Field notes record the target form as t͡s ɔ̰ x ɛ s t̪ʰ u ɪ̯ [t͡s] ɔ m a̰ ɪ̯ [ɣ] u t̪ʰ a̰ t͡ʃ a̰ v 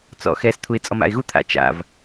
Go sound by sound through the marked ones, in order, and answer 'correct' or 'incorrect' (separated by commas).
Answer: incorrect, correct